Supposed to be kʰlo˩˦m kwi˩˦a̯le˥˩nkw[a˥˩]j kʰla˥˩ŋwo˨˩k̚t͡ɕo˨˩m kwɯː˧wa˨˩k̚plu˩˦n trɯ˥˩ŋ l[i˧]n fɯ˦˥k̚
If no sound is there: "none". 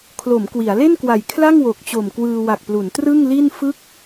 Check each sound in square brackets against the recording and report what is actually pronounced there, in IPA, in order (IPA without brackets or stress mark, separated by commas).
a˨˩, i˥˩